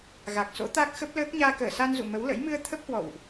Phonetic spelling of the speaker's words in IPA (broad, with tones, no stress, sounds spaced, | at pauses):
ɣ a˨˩ k̚ s o̰˧˥ t̪ a˦˥ k̚ x ə˦˥ p̚ l əː˦˥ k̚ ɲ aː˧ k əː˧˩ s a˧ n z ṵ˧˨ m ə˨˦ w l ə̰˧˥ j m ɨ˧ ə̯ t̪ʰ ə˦˥ p̚ h w ɔ̰˧˨ w ʔ